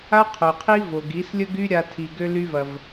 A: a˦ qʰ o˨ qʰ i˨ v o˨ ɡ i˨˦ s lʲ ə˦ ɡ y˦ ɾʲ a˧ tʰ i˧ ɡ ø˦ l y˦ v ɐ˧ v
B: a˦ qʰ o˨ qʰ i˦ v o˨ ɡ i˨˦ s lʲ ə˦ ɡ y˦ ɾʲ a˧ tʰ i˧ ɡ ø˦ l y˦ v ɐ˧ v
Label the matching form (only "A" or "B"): B